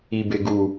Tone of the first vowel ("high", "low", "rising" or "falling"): low